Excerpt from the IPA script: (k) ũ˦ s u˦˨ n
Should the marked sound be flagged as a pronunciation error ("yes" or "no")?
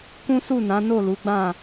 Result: no